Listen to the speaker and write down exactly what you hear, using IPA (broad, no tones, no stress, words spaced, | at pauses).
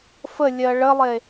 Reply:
fəlʲɜ ɭəlˠe